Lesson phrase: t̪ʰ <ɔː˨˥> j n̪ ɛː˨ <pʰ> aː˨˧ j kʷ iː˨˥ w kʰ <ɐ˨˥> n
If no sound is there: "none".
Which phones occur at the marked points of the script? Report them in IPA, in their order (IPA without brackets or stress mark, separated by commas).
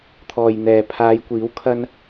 ɔː˨, pʰ, ɐ˥